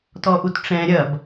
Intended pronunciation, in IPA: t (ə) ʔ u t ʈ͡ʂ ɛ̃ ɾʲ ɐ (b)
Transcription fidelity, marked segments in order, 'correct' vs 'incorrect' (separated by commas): incorrect, correct